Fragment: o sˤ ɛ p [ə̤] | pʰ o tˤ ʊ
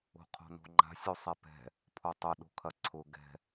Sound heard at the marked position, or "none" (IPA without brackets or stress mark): ɛ̤